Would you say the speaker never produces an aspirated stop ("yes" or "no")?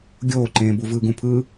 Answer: no